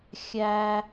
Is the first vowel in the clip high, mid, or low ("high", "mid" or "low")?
low